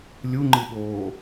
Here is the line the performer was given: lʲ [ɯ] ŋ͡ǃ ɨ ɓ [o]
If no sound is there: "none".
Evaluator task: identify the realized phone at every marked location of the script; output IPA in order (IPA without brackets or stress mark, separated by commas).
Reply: u, oː